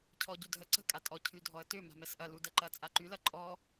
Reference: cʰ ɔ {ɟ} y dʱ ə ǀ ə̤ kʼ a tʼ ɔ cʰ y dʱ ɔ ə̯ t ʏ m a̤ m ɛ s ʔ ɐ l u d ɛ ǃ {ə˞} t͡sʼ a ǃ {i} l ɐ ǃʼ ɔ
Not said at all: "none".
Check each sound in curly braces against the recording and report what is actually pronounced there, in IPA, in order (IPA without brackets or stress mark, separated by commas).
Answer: ɟ, ɐ, y